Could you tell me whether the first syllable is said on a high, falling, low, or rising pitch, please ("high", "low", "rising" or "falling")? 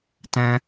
high